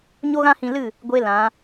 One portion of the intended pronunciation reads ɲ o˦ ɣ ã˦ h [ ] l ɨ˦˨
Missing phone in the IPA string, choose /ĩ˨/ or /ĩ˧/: ĩ˧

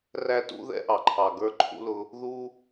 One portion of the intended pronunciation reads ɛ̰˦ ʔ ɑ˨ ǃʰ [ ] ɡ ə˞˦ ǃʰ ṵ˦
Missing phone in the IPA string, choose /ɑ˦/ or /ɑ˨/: ɑ˨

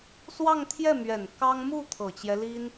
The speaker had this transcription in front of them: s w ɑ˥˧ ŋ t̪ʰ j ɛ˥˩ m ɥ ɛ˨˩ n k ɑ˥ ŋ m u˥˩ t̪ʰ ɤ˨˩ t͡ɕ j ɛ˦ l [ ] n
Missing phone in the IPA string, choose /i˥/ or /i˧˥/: i˥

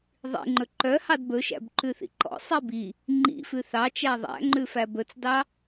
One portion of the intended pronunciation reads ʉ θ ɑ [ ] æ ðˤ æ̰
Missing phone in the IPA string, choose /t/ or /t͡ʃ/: t͡ʃ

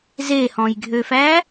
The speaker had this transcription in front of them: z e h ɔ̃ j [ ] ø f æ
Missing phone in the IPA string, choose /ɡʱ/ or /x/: ɡʱ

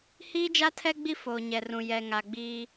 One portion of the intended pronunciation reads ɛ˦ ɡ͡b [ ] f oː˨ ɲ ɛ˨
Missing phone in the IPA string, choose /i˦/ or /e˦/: i˦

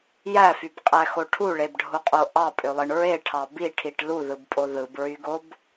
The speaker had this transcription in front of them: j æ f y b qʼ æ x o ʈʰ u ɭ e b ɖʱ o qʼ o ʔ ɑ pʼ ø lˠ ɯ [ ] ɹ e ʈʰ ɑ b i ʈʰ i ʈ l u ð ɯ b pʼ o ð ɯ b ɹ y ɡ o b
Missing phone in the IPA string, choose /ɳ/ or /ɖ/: ɳ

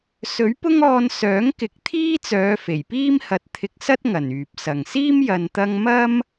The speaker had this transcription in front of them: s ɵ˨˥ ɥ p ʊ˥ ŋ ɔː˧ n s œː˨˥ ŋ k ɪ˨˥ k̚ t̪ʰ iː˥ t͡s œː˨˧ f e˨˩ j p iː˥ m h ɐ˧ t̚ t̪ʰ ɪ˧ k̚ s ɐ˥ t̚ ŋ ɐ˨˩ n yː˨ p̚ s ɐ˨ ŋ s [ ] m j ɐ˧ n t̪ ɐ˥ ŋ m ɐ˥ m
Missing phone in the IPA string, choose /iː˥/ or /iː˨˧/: iː˥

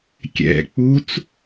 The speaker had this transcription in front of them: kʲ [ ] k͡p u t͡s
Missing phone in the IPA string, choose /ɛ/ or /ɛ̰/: ɛ̰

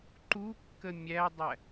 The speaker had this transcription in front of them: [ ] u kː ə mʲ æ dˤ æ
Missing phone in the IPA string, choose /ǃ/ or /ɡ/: ǃ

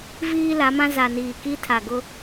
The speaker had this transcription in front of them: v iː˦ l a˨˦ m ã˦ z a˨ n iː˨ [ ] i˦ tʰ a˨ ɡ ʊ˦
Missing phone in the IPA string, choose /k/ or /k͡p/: k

